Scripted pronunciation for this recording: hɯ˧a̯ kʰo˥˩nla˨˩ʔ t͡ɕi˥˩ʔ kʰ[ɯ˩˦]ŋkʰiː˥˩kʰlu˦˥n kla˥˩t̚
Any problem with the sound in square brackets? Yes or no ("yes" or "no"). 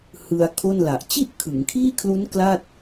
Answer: no